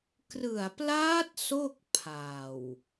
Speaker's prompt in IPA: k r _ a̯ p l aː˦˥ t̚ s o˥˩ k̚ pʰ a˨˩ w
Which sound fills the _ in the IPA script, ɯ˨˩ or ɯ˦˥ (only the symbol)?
ɯ˨˩